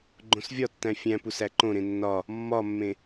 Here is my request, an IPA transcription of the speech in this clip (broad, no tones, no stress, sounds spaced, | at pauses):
ɡ͡ǃ õ s vʲ ɒ tː æ̃ fʲ æ̃ p u s æ ǃ õ ɾ ẽ nː ɒ | mː ɒ mː ẽ